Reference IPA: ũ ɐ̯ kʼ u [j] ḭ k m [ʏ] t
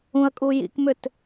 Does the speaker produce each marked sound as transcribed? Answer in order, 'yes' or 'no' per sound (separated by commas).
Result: yes, yes